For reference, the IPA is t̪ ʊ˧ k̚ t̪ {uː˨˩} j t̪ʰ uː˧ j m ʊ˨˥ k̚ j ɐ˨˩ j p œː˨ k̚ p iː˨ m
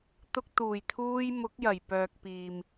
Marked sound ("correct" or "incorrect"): correct